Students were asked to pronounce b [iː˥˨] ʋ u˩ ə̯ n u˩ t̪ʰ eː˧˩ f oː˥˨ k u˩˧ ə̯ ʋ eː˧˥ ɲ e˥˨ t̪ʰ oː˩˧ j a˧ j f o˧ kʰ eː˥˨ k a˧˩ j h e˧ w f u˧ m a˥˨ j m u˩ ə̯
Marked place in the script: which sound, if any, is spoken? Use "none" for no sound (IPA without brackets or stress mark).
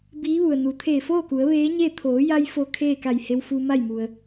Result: iː˧˥